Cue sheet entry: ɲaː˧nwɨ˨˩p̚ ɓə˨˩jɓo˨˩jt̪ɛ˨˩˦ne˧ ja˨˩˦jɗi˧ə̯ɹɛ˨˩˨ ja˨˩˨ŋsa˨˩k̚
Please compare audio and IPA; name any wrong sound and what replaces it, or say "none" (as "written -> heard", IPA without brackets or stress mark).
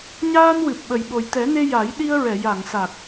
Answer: none